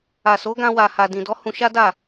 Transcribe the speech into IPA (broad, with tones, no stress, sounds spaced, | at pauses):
a˨ s o˨˦ ɡ ã˧ w a˨ h a˨ d ĩ˨ d ɔ˨˦ h ũ˧ ʃ a˦ d a˦˨